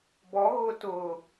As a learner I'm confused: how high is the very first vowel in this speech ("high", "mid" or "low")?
mid